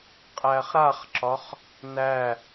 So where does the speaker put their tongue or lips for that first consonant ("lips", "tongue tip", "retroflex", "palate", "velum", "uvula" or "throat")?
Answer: uvula